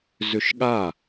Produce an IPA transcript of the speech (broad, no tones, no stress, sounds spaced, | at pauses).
z ʏ ʃ ɠ a